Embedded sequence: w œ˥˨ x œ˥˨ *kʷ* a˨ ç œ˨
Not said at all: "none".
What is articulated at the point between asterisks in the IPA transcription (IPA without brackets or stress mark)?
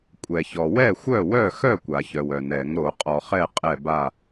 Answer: kʷ